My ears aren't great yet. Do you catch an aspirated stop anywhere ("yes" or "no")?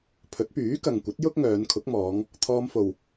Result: yes